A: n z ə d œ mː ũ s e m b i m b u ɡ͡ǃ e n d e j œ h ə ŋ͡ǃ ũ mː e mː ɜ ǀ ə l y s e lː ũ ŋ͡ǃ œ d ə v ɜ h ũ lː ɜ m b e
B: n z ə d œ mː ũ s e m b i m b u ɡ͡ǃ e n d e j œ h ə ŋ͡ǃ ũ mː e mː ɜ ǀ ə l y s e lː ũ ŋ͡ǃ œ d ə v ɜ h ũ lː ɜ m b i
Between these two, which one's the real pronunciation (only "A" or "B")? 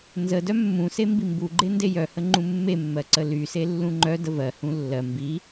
B